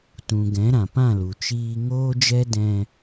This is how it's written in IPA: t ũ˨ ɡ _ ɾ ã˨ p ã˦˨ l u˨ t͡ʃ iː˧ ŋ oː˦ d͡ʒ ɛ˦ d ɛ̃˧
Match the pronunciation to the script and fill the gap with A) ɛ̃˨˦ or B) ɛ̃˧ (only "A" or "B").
A